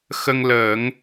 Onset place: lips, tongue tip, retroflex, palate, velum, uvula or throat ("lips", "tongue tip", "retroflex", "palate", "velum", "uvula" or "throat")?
velum